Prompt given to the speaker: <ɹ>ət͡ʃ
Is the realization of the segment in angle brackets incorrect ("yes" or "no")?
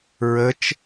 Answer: no